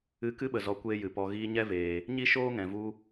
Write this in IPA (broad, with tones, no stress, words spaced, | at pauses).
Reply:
ɨ˧kɨ˦ɓə˨ zɔ˧kʷeː˦jɨ˨pɔ˧ ɣiː˧ɲɛ˦veː˨ | ɲi˦ʃoː˦ŋɛ̃˨vu˧